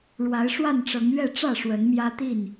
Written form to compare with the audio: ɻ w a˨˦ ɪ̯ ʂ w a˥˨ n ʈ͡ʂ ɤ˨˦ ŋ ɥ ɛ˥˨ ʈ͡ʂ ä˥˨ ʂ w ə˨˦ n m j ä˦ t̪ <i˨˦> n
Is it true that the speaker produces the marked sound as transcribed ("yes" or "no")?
no